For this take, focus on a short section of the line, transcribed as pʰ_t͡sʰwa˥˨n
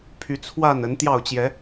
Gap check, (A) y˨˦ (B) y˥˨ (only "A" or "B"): A